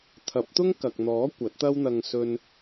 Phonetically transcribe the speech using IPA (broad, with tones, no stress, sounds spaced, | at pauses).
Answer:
t̪ʰ ɐ˨˥ p̚ t̪ ʊ˥ ŋ k ɐ˨ k̚ n̪ ɔː˨˥ kʷ ɐ˨˥ t̚ t̪ ɐ˥ w n̪ ɐ˧ ŋ s ɵ˧ n